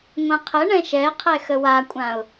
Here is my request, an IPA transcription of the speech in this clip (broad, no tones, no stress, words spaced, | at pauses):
ŋʷãqʰəɳɛ̃ ʃɛqʰɛ xəwakʷʼãʊ̯